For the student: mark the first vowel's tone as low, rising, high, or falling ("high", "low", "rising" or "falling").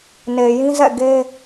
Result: low